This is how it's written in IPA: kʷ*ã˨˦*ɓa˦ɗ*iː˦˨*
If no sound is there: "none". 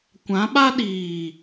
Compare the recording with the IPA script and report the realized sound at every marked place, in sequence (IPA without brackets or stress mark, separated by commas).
ã˨˦, iː˨